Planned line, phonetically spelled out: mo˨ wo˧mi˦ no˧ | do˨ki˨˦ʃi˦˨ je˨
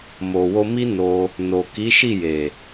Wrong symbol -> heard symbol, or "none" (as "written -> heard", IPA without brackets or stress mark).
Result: d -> n